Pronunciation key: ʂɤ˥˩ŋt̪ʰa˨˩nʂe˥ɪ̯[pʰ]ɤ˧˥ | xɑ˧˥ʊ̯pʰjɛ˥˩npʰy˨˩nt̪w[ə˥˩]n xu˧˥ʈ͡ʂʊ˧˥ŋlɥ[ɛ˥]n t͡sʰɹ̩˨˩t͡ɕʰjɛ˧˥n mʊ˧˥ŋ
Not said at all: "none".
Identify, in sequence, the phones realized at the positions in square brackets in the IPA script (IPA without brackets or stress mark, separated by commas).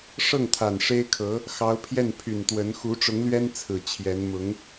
kʰ, ə˧˥, ɛ˥